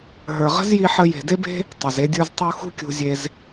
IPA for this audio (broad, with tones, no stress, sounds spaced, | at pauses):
ɦ ə˞˨ ʁ ə̤˦ z j i˧ ħ ə˧ j e̤˨ d e˦ b e̤˦ | tˤ ə˨ z e˦ dʲ ə˞˦ z tˤ u˦ x ṳ˦ kʲ ṳ˧ zʲ e˧ z